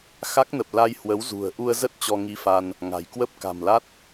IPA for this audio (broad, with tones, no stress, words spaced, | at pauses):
xa˦˥k̚nə˨˩p̚ la˧jhwə˨˦wzṳ˨˩ə̯ ʔu˧ə̯zə˦˥t̚ t͡ɕɔ˧ŋi˧fa˧n | ŋa̤˨˩jkwə˦˥p̚ ka̤˨˩mla˦˥t̚